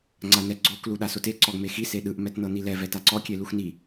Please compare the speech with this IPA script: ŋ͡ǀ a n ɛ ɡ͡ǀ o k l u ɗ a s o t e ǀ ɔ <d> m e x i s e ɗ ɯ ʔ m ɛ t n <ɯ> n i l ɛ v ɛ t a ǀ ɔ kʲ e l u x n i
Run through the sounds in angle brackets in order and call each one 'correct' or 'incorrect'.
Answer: incorrect, incorrect

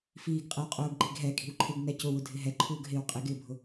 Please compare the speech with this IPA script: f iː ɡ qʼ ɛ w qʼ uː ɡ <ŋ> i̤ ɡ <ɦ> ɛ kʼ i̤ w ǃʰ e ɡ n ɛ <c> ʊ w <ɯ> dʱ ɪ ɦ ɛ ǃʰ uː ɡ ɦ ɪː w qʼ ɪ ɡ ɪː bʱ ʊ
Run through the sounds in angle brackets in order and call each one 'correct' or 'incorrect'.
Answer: incorrect, correct, correct, incorrect

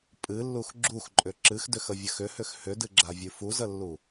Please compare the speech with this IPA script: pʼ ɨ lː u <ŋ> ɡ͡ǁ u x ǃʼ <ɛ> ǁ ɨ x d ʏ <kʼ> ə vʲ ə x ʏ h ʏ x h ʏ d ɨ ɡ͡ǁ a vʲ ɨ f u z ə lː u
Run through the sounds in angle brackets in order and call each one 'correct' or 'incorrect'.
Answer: incorrect, incorrect, incorrect

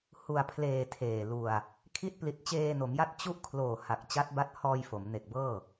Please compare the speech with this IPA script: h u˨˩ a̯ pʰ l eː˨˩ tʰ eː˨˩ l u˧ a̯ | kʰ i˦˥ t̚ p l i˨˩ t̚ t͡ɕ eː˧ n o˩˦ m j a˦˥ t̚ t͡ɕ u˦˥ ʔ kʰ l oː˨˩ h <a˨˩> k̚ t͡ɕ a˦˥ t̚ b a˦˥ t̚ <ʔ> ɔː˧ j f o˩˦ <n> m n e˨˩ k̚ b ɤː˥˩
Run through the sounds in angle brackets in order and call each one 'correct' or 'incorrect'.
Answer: correct, incorrect, incorrect

